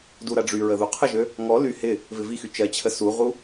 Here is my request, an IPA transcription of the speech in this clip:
d u ɾ a ɖ͡ʐ y ɹ ə ð u qʰ ə ʒ ø | ŋ ɔ l y h ɪ | v ɪ v i x y t͡ʃ ɜ t͡ɕʰ ə s u ʁ u

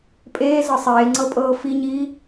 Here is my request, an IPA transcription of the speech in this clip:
pʼ eː z ɤ sˤ eː ŋ͡ǀ ɤ pʼ ɤː f i ɲ iː

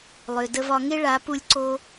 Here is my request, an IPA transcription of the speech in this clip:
lˠ ø˨ d ə˧ v ɒ˧ ŋ e˦ ɭ a˨˦ p u˧ lʲ ǀ o˧

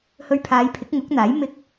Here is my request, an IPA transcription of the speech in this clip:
h ɵ˧ ɥ pʰ aː˨˧ j pʰ ɪ˨˥ k̚ ŋ ʊ˨˥ k̚ n̪ aː˨˥ j m ɪ˥ k̚

